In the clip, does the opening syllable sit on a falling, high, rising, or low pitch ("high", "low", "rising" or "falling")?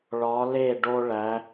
rising